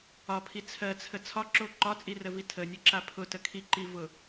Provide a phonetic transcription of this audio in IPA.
ɒpʰi t͡sʰɜt͡sʰə t͡sʰɒǁo ǃɒt͡sʼirəvi tʰənʲɘǁa pʰʊtə kʰiǃivʊ

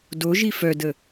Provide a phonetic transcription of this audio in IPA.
doʒi fœdə

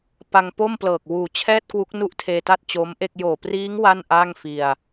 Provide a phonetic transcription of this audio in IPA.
pa˧ŋpo˥˩mplɤː˨˩k̚ wuː˨˩t͡ɕʰɛː˥˩t̚kwu˦˥k̚ nu˥˩ʔtʰeː˧ta˥˩t̚ t͡ɕo˦˥mʔe˥˩k̚ joː˨˩priː˦˥ŋ wa˥˩nʔa˥˩ŋfi˧a̯

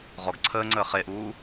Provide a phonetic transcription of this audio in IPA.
ʁɔɡ ǀʰəːŋ͡ǀəː χeʔuː

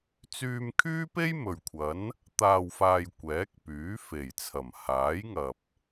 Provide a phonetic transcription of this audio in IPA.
t͡syː˧mkʰyː˥pe˥j mɵ˨ɥkʷʰɐ˨˥n | t̪aː˨wfaː˨j kʷɛː˨˥k̚pyː˨˥fe˨˩jt͡sʰɐ˨˩m haː˨˥jŋɐ˨p̚

